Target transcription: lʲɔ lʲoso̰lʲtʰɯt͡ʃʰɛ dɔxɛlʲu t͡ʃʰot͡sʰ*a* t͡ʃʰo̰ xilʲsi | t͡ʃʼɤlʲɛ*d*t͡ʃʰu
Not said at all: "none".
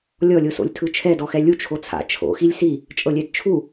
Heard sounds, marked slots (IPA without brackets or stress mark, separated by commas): a̰, d